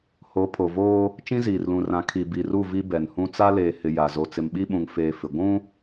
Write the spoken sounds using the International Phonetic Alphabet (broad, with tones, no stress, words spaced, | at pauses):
ho˨˦ pʰo˨voː˦ | t͡ʃĩ˦ziː˨rlũ˨rã˨˦ kʰi˨bi˨ru˦˨ vi˦bɛ˨nhũ˦ t͡sa˦leː˨hɪ˨ ja˨ zo˨t͡sɪ˨mɓi˦ɓũ˨ŋ feː˦fɪ˨ ɡʷũ˦